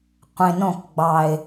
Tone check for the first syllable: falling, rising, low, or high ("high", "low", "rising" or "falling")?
low